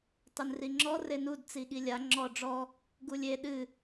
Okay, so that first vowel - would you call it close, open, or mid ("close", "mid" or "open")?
close